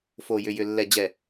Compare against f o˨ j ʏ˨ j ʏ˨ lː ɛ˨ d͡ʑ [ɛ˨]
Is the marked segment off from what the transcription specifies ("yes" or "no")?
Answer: no